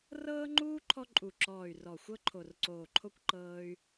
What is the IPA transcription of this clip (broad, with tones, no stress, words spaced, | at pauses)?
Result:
rɤː˦ŋ͡ǃuː˦ ǃʰɔ˦ǃʼu˨˩ ǁɔː˨˩y̯rɔ˨˩ xʷɤ˦ǃʰo˨˩rǀoː˨˩ǃʰo˦kʷ ǃɤː˦y̯